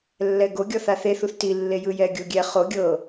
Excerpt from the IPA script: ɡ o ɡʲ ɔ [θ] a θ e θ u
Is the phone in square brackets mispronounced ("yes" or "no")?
no